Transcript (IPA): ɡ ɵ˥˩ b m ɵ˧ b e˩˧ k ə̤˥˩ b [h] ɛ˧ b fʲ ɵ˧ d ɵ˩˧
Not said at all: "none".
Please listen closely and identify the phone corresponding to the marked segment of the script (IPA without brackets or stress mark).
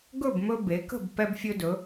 p